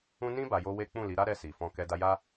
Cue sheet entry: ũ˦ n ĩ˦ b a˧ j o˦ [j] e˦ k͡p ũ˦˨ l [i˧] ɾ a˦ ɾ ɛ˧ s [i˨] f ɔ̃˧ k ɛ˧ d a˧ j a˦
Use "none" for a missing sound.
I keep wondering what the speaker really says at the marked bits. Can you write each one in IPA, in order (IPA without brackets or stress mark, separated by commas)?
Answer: w, i˨˦, i˨